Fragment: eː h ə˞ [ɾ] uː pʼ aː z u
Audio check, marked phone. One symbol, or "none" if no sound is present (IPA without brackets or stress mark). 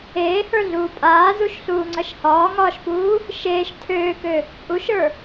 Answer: ɮ